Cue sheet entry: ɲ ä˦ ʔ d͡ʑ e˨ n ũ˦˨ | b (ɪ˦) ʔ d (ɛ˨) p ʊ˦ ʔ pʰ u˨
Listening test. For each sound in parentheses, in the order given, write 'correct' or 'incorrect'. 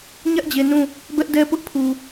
incorrect: ɛ˦, incorrect: ɛ˦

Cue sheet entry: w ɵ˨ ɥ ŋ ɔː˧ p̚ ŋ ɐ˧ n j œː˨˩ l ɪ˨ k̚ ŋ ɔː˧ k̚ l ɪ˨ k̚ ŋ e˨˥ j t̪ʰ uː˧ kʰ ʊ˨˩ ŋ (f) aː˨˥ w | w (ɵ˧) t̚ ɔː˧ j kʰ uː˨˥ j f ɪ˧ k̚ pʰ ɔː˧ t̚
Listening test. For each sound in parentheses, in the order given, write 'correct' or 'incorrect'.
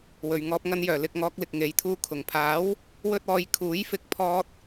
incorrect: pʰ, incorrect: ɵ˥

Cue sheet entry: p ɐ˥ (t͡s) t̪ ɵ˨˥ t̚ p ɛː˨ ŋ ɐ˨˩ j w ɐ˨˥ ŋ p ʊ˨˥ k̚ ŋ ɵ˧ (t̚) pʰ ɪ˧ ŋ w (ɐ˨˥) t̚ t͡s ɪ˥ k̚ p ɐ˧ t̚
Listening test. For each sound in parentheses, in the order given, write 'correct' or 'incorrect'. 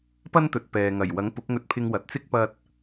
incorrect: n, correct, incorrect: ɐ˨

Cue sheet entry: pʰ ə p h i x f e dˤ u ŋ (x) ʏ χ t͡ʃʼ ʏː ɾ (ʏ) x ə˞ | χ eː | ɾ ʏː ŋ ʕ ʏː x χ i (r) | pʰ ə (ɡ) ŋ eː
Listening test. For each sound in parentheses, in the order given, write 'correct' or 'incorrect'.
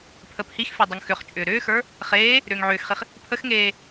correct, incorrect: ʏː, incorrect: χ, incorrect: x

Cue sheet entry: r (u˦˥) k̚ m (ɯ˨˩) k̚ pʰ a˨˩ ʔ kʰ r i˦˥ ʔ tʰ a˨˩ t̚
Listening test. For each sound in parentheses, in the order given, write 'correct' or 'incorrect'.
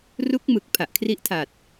correct, correct

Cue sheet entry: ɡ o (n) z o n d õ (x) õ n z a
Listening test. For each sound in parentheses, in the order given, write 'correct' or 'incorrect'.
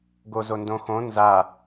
incorrect: none, correct

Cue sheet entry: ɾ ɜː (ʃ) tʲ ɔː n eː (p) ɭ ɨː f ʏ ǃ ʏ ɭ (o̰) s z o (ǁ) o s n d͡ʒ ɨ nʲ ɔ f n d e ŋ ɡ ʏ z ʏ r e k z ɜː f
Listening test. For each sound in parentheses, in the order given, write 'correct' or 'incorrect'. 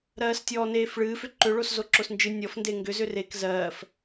incorrect: s, incorrect: f, incorrect: o, correct

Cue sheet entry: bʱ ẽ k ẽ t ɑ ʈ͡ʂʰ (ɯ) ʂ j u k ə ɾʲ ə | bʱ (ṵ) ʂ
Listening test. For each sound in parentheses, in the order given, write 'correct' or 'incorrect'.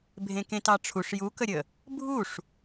incorrect: u, incorrect: u

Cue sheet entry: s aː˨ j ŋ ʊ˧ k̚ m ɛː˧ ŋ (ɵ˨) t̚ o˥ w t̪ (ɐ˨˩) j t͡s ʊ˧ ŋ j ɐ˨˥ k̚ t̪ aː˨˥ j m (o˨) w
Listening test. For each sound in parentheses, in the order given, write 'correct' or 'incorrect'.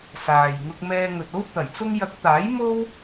correct, correct, incorrect: o˥

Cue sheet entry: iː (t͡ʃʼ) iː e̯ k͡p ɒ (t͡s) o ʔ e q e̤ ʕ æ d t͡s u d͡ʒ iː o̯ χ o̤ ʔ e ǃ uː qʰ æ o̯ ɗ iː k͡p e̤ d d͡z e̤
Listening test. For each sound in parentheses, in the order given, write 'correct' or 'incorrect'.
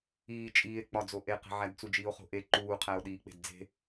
correct, incorrect: d͡z

